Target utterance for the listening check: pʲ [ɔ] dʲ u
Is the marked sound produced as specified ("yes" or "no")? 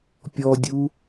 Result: yes